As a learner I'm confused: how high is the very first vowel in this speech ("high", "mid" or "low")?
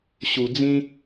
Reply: high